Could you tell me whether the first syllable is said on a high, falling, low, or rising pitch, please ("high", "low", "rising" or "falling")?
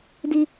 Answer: high